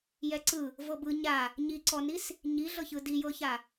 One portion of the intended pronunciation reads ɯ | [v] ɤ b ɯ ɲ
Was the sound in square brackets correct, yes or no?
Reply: yes